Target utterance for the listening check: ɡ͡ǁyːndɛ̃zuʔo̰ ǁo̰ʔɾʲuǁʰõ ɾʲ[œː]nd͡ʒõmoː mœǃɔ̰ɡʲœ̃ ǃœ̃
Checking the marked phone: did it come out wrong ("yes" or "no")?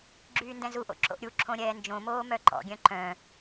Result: yes